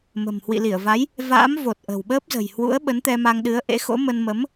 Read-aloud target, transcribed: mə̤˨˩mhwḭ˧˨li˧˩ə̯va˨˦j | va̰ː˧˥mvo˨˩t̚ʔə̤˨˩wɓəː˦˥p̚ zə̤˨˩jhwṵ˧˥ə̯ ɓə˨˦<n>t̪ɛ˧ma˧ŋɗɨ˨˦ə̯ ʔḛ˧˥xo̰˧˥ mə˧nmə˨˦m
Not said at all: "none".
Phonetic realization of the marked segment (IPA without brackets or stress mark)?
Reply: n